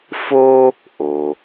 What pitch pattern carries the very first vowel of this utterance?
high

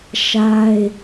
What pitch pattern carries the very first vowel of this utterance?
high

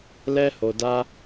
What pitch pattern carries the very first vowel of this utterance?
high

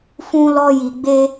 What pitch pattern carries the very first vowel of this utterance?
high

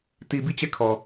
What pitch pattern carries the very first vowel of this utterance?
low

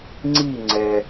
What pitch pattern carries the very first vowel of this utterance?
falling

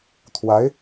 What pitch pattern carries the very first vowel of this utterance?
rising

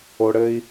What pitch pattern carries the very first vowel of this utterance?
low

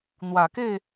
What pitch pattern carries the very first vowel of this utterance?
low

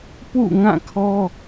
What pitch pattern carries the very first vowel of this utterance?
falling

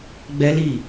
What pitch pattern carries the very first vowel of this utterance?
high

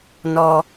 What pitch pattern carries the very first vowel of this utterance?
high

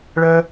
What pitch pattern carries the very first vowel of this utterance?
high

